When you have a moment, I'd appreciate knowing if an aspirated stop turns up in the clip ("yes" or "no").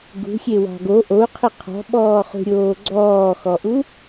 yes